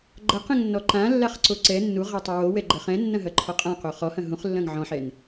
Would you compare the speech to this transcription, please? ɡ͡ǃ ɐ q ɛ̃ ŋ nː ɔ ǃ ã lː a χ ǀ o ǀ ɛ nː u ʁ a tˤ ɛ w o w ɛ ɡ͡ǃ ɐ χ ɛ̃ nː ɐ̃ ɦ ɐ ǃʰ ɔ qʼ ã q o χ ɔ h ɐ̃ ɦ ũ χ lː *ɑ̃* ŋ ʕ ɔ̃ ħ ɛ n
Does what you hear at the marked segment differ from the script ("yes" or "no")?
yes